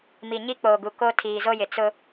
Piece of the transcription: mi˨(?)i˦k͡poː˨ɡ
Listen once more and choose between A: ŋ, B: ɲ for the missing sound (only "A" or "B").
B